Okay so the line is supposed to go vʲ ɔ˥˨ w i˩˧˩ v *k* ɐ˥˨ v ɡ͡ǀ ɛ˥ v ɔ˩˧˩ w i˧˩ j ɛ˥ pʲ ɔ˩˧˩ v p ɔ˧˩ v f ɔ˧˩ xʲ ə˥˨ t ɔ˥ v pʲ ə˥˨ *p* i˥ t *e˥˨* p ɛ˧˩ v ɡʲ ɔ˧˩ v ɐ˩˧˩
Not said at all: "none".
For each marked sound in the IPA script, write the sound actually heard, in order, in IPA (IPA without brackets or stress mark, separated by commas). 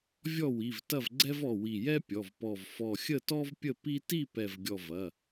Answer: t, p, i˥˨